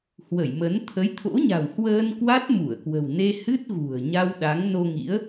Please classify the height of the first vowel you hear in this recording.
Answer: mid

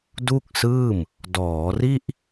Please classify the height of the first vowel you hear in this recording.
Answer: high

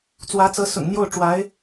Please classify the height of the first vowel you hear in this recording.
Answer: low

